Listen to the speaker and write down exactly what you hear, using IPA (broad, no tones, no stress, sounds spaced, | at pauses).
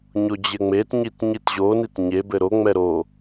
ɲ o d͡ʑ ɘ ŋ͡m e t ɲ i t ɲ i t ʑ o n i t ɲ e b ɘ ɾ o ŋ͡m ɛ ɾ o